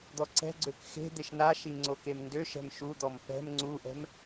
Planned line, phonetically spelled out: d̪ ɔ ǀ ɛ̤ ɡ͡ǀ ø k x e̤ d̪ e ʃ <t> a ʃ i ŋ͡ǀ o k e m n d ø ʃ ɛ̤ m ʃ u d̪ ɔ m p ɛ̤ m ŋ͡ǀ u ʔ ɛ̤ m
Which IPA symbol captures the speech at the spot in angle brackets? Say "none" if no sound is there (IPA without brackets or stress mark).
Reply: n